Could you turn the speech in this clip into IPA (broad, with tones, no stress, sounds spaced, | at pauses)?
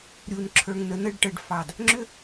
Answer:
ɾʲ u˨ n ǁʰ ə˞˨ ŋ n ə˨ n ə˦˨ ɖ ʈ ə˨ ɖ f ɑ˨ d | ŋ͡ǁ ʏ˦